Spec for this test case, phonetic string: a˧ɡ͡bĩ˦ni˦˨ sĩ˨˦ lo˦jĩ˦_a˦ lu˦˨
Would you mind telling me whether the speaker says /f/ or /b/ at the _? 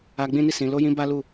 b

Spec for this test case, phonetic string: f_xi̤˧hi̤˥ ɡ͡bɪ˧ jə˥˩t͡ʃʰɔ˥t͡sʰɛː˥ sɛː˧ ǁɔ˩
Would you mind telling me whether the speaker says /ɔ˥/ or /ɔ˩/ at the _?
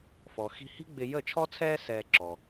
ɔ˩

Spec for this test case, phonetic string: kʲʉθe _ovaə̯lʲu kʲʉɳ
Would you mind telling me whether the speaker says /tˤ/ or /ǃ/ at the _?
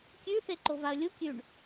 ǃ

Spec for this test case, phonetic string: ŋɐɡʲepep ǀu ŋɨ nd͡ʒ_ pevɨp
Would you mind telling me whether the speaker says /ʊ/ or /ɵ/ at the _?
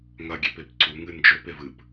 ɵ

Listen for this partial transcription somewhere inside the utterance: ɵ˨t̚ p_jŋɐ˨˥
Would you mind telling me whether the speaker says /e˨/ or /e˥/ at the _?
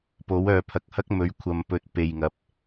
e˨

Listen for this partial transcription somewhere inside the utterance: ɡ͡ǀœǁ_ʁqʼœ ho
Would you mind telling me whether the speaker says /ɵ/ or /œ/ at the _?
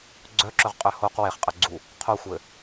ɵ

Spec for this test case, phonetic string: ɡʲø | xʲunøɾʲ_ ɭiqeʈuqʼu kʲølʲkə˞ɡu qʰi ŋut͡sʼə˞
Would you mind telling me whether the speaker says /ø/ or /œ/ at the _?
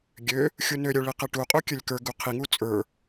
œ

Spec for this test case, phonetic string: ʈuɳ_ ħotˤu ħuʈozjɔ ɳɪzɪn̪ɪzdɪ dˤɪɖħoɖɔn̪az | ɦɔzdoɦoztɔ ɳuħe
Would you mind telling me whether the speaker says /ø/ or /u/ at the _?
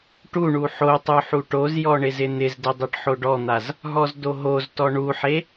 u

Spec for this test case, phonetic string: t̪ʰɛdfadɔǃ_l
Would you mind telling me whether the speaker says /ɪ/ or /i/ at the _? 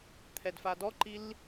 i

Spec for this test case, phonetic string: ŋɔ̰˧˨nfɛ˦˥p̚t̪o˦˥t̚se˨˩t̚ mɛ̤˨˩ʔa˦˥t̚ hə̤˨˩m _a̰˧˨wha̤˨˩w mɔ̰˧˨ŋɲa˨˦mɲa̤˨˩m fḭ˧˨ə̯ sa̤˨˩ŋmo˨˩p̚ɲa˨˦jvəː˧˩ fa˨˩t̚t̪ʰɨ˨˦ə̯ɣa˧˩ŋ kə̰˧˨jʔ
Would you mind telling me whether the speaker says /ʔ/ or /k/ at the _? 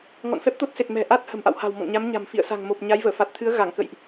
ʔ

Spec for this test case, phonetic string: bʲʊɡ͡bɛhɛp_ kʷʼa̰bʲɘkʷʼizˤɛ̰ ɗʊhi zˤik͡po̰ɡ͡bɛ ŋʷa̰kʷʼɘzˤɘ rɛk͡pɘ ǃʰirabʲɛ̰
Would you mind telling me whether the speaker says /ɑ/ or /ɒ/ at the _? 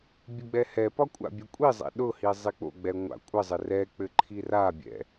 ɒ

